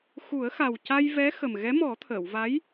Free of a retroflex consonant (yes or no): yes